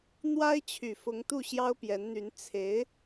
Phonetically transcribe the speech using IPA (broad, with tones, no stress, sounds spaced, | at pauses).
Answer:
n̪ w a˥ ɪ̯ t͡ɕʰ y˨˩ f ʊ˧˥ ŋ t̪ u˥˩ ɕ j ɑ˥ ʊ̯ p j ɛ˧˥ n n̪ y˧˥ n t͡sʰ e˧˥ ɪ̯